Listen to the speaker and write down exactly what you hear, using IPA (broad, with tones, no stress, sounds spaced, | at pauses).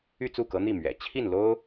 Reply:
y˥˧ t͡s u˥˩ k ɤ˧˥ n̪ i˥˩ m ɥ ɛ̰˨˩ t͡ɕʰ i˥˩ n l o˥ ʊ̯